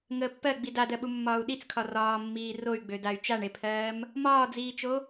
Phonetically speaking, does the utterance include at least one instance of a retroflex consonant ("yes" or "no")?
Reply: yes